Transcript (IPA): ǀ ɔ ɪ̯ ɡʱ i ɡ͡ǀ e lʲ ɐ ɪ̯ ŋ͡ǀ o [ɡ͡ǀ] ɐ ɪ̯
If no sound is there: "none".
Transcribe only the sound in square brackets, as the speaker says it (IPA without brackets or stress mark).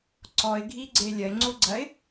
ɡ͡ǀ